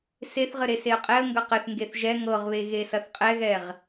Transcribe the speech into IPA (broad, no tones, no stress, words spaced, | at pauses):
seθʁɘ ɾeseə̯qʼɛə̯ŋɡɐ qɘθŋɡeθ ʒɛ ŋɤʁβe ɣesɐθqʼɛɣɛʁ